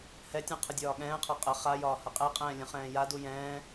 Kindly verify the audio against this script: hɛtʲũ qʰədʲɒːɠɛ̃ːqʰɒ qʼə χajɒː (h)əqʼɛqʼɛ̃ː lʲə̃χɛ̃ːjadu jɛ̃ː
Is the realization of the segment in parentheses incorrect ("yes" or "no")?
no